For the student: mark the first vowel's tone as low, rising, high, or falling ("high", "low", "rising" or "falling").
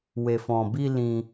low